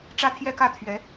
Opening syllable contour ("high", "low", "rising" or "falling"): falling